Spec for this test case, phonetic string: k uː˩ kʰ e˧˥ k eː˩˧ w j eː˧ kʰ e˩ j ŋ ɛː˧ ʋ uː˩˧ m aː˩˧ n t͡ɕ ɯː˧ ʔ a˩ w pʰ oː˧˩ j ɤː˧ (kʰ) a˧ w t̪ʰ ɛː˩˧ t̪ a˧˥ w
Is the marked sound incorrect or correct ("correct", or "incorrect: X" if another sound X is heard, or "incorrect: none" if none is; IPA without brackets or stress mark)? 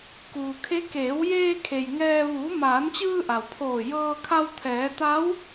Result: correct